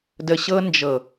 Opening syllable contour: low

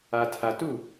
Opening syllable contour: low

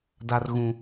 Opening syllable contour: high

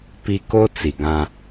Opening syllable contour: high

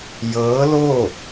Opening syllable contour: rising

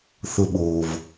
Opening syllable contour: low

